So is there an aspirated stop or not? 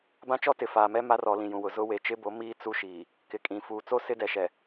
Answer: no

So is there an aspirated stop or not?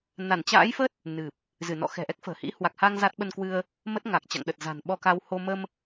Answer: no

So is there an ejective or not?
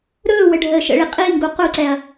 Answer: yes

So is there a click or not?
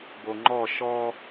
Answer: yes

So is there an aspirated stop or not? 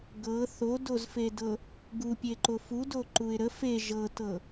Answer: no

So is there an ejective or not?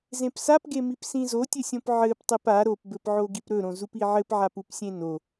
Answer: no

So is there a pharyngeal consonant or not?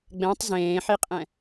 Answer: yes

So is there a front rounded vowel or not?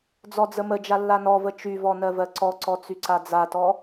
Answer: yes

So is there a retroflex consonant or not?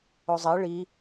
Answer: yes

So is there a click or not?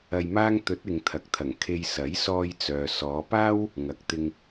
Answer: no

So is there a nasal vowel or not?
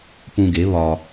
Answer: yes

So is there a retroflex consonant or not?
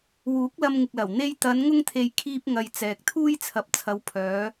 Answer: no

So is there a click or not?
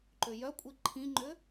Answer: yes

